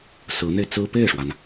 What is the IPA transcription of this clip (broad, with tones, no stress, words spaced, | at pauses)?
sɹ̩˧˥n̪e˧ɪ̯t͡sɹ̩˥ pe˥˩ɪ̯ʂwa˩n